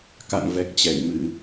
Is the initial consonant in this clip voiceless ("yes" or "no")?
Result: yes